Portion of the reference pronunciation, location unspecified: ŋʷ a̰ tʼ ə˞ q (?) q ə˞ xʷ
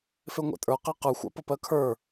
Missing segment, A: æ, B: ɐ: A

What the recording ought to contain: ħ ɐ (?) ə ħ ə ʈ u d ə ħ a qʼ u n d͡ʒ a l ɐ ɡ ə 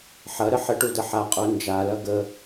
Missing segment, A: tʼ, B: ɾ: B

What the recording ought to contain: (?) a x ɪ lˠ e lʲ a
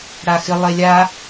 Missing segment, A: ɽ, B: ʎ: A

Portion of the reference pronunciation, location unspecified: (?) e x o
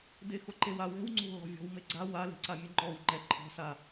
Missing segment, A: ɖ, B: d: B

